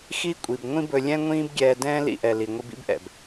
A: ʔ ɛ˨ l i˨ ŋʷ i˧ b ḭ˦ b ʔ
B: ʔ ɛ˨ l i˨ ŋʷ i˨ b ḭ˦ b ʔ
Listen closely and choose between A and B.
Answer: A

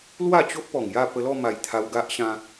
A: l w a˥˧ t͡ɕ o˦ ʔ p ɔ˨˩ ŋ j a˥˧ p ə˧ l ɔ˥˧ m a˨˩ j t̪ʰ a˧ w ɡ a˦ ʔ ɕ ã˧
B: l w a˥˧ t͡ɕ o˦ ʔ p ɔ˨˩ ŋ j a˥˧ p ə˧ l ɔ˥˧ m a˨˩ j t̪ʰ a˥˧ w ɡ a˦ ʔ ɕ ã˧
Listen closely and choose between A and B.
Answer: A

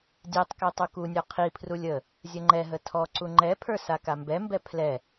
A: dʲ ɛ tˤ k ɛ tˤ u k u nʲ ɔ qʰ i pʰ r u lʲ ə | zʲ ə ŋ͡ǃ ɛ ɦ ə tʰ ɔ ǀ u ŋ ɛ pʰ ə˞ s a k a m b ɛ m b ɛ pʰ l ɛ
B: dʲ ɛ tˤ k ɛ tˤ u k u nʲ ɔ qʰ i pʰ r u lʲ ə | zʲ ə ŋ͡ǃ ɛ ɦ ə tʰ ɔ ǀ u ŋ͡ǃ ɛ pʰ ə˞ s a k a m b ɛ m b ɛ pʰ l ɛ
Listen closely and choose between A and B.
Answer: B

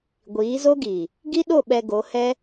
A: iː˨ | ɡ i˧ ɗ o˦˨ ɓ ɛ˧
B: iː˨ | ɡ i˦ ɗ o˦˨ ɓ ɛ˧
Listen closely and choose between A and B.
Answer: B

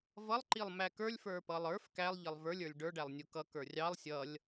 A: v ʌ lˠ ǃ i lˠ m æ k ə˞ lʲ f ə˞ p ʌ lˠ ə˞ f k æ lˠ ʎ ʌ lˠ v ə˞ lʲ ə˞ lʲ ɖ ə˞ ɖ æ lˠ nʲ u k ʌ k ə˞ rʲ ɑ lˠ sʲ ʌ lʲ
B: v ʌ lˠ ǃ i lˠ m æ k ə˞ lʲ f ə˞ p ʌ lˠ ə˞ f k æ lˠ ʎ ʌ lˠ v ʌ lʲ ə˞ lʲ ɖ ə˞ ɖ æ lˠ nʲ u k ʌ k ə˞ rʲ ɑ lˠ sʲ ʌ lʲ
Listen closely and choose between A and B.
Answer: A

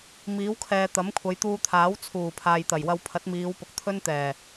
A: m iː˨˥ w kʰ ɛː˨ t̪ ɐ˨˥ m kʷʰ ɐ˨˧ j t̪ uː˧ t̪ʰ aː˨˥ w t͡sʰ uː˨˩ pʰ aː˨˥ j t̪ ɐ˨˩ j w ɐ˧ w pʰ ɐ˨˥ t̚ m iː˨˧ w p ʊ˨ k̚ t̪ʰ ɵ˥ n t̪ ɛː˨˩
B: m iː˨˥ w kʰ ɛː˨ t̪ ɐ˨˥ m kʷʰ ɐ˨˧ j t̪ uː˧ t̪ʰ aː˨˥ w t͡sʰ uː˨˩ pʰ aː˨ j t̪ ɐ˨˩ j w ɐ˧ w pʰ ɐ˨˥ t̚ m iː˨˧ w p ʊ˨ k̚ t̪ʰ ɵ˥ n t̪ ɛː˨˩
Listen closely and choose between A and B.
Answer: B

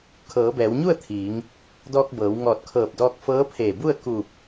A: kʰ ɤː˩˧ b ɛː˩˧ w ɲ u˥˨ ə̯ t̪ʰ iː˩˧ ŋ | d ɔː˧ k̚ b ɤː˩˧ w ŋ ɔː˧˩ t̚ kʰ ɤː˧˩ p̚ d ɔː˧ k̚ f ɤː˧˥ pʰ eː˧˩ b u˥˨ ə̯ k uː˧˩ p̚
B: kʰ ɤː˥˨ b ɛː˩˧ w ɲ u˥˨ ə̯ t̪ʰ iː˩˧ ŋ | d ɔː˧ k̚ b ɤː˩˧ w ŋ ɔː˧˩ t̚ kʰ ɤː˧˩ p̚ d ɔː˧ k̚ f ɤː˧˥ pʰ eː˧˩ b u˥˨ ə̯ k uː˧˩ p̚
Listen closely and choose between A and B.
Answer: A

